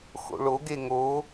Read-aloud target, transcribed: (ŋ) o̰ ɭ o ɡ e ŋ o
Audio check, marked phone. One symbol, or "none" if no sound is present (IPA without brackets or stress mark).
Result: x